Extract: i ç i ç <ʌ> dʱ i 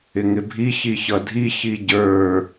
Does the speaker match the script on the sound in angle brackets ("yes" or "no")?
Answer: yes